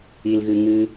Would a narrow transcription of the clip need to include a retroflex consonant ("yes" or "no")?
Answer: no